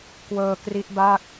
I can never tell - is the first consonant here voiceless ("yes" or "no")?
yes